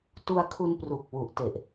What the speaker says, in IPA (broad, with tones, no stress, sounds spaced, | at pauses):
t u˧ a̯ kʰ u˧ n p r u˨˩ k̚ w u˨˩ ʔ t e˨˩ ʔ